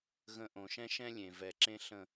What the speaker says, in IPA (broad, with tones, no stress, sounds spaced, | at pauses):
ɣ ə̃˨ ʔ õ˨ ʃ ɛ̃˦ ʃ ɛ̃˦ lʲ ẽ˨ v ɛ˨ ǁ ẽ˦ ɬ ə̃˦